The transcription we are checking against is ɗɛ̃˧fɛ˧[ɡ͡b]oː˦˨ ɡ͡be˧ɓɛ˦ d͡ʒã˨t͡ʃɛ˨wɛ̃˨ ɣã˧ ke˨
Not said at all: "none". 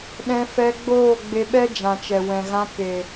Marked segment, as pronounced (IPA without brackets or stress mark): ɡ͡b